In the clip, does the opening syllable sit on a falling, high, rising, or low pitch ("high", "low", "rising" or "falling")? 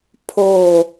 falling